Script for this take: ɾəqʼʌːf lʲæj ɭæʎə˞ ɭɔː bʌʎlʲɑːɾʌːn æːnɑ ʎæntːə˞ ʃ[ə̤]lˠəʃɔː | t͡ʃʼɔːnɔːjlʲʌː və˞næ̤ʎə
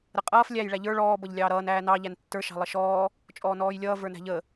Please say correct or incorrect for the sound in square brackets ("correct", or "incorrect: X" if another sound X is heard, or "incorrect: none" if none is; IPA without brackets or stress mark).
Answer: incorrect: ɑ̤